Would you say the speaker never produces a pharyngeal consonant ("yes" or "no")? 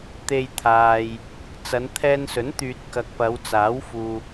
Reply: yes